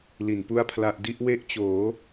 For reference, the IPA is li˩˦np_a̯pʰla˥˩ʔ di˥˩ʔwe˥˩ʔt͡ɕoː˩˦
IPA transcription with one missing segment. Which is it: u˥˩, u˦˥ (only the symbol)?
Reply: u˥˩